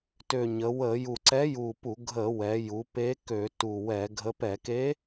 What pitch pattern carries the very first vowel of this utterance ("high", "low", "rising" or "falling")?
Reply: low